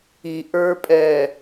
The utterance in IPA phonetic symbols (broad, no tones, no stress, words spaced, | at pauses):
iʔə˞pʼɛ